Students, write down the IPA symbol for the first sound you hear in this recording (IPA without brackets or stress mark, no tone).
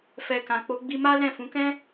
f